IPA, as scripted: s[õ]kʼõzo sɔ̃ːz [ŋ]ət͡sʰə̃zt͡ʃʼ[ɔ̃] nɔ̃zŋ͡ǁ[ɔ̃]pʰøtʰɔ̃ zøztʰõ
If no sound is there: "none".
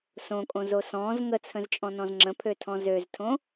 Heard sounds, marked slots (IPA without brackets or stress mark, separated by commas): õ, ŋ, ɔ̃, ə̃